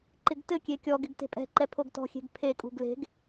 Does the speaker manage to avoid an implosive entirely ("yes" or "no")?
yes